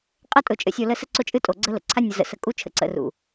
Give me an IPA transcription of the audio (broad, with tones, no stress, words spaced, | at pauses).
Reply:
qʼə˦tʼʊ˨ t͡ʃʼə̰˨sʲo˨ lə˦ sə˦ǀʊ˦t͡ʃʼɨ˦ tʼo˨ɡ͡ǀə˦lə̰˨ ǀʰa˦nʲʊ˨zə̰˨ sə˨kʼu˦t͡ʃʰə̰˨ ǀə̰˨rṵ˨